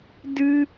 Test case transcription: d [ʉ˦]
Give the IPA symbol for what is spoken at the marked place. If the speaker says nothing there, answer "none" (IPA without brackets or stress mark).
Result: ɨ˦